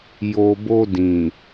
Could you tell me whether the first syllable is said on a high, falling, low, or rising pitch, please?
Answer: low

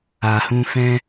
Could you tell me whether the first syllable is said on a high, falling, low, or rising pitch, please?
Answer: low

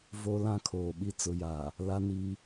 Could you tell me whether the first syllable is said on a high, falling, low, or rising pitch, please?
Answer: high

